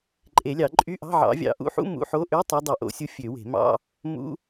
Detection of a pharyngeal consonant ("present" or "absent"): present